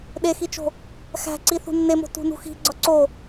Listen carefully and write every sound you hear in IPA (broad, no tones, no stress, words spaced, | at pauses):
ɗexit͡ʃo̤ | xæ̤ǀi θṳnːemo̤ tṳnṳxi̤ ɡ͡ǀɒǀo